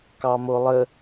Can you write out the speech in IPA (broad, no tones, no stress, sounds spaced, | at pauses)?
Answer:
k ɑ m o lˠ ə